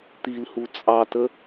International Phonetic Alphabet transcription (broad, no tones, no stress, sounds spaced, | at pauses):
t̪ i l h u t͡sʼ ɑ t ə